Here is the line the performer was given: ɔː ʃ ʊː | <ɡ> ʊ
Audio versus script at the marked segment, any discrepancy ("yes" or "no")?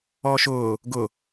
no